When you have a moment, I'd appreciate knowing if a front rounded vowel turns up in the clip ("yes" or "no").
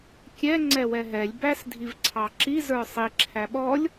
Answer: no